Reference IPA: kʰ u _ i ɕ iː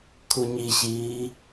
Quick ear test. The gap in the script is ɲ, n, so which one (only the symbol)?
ɲ